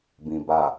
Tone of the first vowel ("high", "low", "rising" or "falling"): low